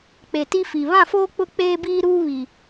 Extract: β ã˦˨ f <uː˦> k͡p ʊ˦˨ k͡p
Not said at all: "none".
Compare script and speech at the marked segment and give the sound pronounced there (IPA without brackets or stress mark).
oː˦